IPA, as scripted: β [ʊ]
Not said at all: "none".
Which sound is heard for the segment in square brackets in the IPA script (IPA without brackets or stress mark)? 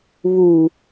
u